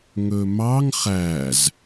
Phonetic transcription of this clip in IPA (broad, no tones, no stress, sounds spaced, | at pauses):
ŋ ɵ m ɑ ŋ χ æ z